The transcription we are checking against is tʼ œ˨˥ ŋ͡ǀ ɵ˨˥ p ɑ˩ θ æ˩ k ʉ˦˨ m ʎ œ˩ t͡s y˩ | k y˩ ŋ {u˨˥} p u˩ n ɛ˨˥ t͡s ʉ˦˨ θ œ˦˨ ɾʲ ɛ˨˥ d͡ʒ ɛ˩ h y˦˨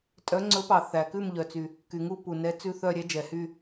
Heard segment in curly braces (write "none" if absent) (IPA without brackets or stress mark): u˦˨